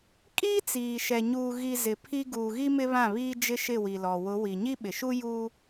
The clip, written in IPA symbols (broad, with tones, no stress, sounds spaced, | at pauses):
kʼ iː˦ t͡s iː˨ ʃ ɛ˨ ɲ uː˨ ɣ i˨ z ɪ˨ pʰ i˦ ɡ uː˨ ɣ i˦ m ɪ˦ β ã˦˨ β iː˦ d͡ʒ ɪ˦ ʃ ɪ˦˨ w i˨ l ɔ˨ w ʊ˨˦ w i˨ ɲ i˦ ɓ ɪ˨ ʃ u˦ j u˦